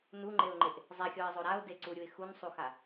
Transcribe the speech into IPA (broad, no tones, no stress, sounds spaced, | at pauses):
n u ŋ͡ǃ e ʊ̯ ŋ͡ǃ e ʔ | zˤ ɛ xʲ ɔ ɪ̯ zˤ o ɾ a ʊ̯ d e ǀ u ɾʲ u ɪ̯ x u n sˤ u x a